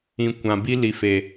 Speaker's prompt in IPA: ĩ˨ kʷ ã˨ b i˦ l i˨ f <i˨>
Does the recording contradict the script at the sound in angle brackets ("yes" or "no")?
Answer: yes